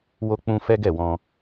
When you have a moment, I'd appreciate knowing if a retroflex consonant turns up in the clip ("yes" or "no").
no